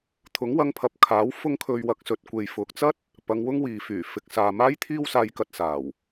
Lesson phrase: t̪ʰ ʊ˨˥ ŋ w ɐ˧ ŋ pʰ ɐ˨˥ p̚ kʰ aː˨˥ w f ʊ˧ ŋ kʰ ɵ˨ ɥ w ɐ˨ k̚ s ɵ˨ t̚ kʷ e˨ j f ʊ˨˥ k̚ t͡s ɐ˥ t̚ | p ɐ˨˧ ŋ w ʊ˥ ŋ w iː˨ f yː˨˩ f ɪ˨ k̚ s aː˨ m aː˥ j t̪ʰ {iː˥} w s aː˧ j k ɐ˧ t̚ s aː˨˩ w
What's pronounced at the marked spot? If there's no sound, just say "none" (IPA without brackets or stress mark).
iː˥